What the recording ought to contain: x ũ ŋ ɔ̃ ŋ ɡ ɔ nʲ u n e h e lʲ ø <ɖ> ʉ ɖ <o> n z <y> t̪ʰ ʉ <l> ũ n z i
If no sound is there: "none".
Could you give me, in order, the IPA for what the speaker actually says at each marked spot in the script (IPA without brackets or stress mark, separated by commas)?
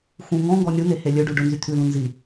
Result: ɖ, ɵ, y, l